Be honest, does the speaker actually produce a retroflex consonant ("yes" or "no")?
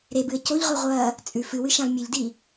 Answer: no